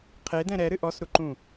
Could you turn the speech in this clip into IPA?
qʰ e d ɛ̃ ɾ ɛ ɾ ɨ ʔ ɔ s ɾ u ǃ ũ

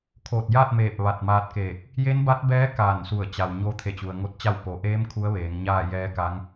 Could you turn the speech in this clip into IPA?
kʰ oː˧˩ t̚ j a˥˨ t̚ m eː˧˩ p̚ ʋ a˧˩ t̚ m aː˧ t̚ k eː˧˩ k̚ | j e˧˥ n b a˧˥ t̚ b ɛː˧˥ k aː˧˩ n s u˧˩ ə̯ t͡ɕ a˩ w ɲ o˧ t̪ʰ e˧˩ t͡ɕ u˩ ə̯ ŋ o˧˥ t̚ t͡ɕ a˥˨ w p o˩ ʔ eː˧˥ m kʰ u˧˥ ə̯ ʋ eː˩˧ ŋ ɲ aː˥˨ j ɛː˧˥ k a˧˥ ŋ

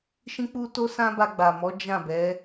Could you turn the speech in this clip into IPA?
ʃ ĩ˦ k͡p u˦ t o˦ s ã˦ b a˧ ɡ͡b a˨ m ɔ˨˦ d͡ʒ ã˦˨ b ɛ˨˦

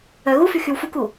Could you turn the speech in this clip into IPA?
œ ɣ u f y x y w f u k u

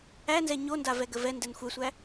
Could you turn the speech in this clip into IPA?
æ n z ɛ ɲ o n d a v ɛ ɡ ə v ɛ n d ɛ n xʷ ɛ sʷ æ

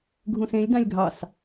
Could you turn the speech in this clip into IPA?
ɡʱ ũ s ẽ lʲ d ɑ̃ lʲ ɡʱ ɑ s

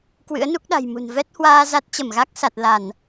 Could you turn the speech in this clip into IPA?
k w ɨ̰˧˥ ə̯ n u˦˥ k̚ ɗ a̤˨˩ j m ṳ˨˩ n v ɛ˦˥ t̚ h w aː˧ z a˦˥ t̚ t͡ɕ ə˧˩ m ɣ a˦˥ k̚ s a˨˩ t̚ l a˧˩˨ n

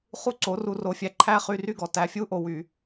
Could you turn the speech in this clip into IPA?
χ u˦ ǀ o˨˦ r u˧ r o˧ fʲ æ˧ ǃʰ æ˦ χ y˧ r y˦ ɡ ɔ˨ t æ˨ fʲ u˦ ʔ o˨ w y˨

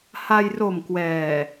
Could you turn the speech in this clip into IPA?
h a˧ j r o˨˩ m k w ɛː˨˩

